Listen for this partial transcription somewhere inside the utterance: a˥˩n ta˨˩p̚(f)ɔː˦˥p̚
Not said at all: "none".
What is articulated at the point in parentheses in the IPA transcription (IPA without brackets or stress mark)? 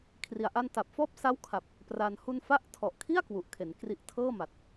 f